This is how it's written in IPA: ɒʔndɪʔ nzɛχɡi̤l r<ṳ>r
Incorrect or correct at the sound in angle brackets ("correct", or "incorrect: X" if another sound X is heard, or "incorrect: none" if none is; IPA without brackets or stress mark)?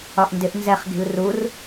incorrect: u